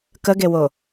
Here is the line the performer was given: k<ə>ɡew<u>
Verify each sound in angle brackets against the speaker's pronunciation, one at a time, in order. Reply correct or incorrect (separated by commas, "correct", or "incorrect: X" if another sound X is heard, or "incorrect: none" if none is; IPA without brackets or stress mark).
correct, incorrect: o